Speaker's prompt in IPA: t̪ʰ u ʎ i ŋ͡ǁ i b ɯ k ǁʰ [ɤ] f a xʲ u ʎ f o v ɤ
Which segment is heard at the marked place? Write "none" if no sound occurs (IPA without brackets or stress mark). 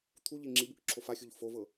o